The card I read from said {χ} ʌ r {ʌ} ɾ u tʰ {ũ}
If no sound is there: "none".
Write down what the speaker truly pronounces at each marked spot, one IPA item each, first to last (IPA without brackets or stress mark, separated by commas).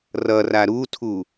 r, a, u